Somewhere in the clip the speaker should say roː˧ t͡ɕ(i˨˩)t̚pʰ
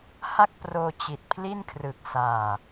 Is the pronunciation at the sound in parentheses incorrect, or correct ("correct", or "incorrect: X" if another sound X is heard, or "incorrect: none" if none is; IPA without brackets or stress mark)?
correct